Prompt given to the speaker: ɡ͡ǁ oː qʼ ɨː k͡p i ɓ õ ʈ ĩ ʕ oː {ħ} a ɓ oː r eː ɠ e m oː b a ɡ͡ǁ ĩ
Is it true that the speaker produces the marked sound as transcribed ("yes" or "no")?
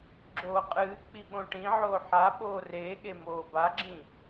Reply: yes